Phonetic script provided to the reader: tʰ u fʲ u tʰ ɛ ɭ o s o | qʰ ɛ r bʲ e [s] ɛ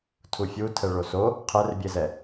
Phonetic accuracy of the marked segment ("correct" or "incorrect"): incorrect